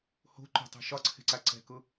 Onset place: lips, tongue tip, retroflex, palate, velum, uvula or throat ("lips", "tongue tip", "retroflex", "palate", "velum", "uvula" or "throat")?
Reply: throat